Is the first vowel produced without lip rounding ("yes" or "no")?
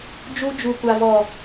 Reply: no